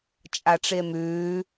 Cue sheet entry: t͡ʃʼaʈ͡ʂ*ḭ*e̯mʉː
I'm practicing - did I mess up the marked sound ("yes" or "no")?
yes